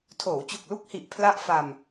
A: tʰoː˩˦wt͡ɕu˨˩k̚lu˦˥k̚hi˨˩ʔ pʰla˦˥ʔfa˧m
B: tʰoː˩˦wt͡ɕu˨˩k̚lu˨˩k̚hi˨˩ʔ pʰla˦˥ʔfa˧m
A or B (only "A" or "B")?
A